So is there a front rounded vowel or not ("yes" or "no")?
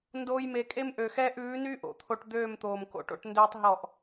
yes